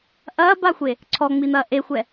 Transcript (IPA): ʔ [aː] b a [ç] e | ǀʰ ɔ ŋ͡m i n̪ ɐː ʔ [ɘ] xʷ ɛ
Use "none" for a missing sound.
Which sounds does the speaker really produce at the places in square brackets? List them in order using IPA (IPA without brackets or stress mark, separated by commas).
ɐː, xʷ, e